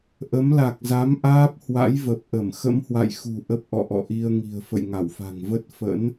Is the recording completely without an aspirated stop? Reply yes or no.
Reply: yes